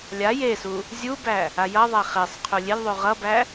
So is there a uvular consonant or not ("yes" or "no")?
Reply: yes